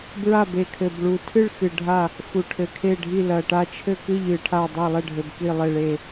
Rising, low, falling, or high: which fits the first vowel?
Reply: falling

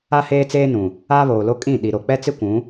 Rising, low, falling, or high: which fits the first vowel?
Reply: high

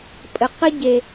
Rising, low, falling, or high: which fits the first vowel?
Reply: low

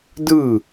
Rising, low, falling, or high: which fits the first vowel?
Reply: falling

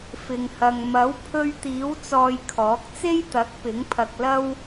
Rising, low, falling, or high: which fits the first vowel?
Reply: low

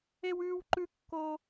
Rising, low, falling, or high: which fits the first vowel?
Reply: high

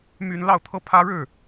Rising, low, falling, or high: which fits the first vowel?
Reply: high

